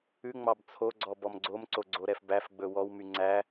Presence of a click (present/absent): present